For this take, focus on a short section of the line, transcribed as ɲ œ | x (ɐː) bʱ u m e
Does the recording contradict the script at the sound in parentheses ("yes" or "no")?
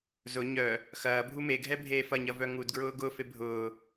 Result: no